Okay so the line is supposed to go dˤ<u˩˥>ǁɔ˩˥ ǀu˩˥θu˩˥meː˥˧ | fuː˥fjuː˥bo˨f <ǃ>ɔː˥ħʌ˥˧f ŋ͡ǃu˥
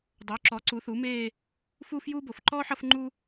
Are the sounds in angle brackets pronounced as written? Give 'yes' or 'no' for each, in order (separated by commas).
no, yes